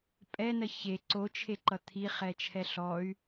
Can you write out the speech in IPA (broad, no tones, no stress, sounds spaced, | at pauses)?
pʼ ɛ n ɜ ç e ǀ o t͡ʃʰ e ǃ ʌ t̪ʰ i χ ɛ t͡ʃʰ ɛ ɬ ɔ y̯